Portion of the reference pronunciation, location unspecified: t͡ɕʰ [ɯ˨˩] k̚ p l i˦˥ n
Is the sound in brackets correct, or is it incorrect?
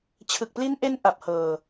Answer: correct